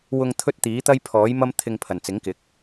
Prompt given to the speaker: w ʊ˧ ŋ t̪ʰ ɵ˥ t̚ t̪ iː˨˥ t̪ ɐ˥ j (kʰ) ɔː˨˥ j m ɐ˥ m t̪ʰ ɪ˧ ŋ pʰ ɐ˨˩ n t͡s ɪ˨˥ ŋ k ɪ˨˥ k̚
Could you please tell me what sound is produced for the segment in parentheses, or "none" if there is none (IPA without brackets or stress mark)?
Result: pʰ